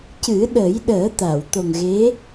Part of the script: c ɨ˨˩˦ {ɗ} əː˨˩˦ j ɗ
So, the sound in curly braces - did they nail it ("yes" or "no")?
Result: yes